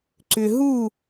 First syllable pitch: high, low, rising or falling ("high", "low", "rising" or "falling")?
low